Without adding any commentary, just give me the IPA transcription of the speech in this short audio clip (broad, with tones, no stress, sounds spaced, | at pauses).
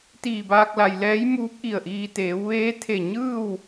t̪ iː˧˩ b aː˧ k̚ l a˩ j l ɛː˧˥ j m uː˧˥ p̚ ʔ i˧˩ ə̯ ʔ iː˧ t̪ eː˩˧ w ʋ eː˧˥ t̪ʰ e˧˩ ɲ ɯː˥˨ w